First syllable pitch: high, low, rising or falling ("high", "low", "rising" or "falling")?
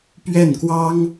falling